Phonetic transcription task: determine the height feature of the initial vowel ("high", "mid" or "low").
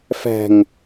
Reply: low